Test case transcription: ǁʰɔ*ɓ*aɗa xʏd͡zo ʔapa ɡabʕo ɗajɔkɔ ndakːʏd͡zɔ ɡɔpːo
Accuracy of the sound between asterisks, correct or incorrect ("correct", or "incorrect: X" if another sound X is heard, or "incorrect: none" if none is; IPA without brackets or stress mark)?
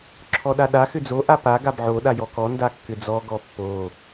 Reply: incorrect: ɗ